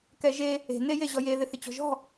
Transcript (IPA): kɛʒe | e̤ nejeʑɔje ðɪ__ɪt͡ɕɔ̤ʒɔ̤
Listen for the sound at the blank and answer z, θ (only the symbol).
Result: θ